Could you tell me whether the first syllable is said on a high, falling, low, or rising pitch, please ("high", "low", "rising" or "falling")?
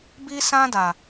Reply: high